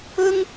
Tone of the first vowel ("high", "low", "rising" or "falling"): high